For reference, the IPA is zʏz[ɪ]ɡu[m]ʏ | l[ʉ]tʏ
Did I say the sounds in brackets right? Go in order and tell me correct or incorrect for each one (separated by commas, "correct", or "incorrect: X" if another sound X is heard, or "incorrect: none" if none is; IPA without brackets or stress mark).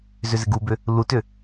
correct, incorrect: b, incorrect: u